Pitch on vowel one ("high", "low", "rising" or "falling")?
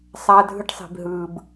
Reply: high